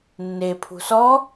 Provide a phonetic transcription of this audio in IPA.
nː e pʰ ṳ s ɔ

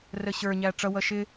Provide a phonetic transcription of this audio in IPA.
r ə ɕ ə˞ ɲ æ ʈ͡ʂ ʌ w ʌ ʃ ɪ

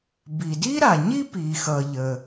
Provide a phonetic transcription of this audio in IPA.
b i˩ d i˥ ɾ a˩ ɲ i˥ p i˩ x ʌ˩ ʎ ə˩

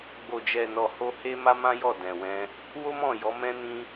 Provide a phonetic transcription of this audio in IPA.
ɡ͡b o˨ d͡ʒ ɛ˨ n ɔ˨ h o˧ h e˦ m a˦ m ã˦ j ɔ˦˨ d ɛ̃˨ w ɛ̃˧ | w o˦ m ɔ̃˦˨ j ɔ˨˦ m ɛ̃˧ n ĩ˧

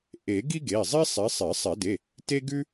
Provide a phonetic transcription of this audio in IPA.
ʔ e˨˩˦ ɡ i˥ ɡ e˩˧˩ zˤ i˥ sˤ i˨˦ sˤ e˨˩˦ sˤ ɛ˨˩˦ d e˩˧˩ | t e˥ ɡ ʉ˥

